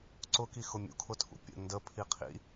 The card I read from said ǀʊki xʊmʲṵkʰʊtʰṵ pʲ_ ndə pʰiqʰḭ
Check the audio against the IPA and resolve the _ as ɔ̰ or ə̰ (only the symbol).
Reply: ə̰